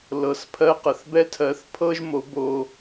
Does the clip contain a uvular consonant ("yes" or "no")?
yes